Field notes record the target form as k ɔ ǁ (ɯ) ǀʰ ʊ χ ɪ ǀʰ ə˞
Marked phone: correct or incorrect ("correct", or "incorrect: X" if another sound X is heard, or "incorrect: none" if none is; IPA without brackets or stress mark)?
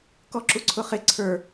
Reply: incorrect: u